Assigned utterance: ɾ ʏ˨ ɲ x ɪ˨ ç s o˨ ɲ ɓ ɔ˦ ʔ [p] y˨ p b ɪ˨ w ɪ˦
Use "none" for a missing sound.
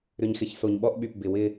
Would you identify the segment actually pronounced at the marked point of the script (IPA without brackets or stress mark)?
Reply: ɓ